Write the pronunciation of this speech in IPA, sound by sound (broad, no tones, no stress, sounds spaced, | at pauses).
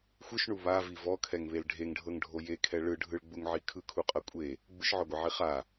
xʷ ɯ ʃ ɳ u β a v i v ɔ kʰ ɛ ŋ β e l ɖʱ e ŋ ɖʱ ɤ ŋ ɖʱ o j e kʰ ɛ ɭ ɯ ɖʱ ɯ ɭ ɡ͡b u ŋ ʕ i kʰ ɯ kʰ u qʼ ɤ kʷʼ e | ɡ͡b ɯ ʃ ʕ ɔ ɡʷ ɛ ʕ i χ a